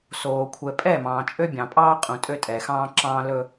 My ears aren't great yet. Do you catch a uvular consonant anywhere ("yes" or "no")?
yes